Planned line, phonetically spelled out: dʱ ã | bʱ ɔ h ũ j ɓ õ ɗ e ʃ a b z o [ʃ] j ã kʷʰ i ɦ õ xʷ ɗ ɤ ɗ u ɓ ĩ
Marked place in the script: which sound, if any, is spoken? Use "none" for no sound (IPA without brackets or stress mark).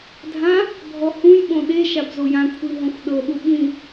none